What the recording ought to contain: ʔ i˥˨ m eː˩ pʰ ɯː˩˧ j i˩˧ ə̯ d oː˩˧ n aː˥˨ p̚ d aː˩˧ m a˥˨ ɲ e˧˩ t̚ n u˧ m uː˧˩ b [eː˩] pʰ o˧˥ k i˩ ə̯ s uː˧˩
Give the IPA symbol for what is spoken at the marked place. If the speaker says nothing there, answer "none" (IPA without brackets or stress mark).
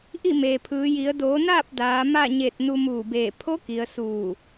eː˧˩